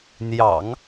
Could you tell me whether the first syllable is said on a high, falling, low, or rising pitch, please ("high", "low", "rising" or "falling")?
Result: low